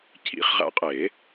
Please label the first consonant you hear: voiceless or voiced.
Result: voiceless